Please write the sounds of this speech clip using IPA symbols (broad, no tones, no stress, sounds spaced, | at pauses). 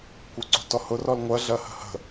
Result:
kʷ ɤ ǀ ṳ t ɔ h ʊ r ɔ l ŋʷ ɜ ɮ ɜ h ə̤ h ə̤